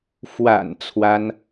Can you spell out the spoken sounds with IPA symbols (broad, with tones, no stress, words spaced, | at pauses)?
fwa̰˨˩n t͡sʰwa˥n